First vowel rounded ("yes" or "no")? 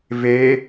no